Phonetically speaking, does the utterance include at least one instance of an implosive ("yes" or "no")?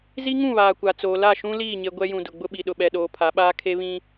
yes